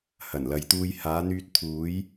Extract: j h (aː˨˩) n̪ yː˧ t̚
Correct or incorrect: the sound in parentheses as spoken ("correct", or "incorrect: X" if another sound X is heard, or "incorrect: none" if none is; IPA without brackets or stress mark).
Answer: incorrect: aː˨˧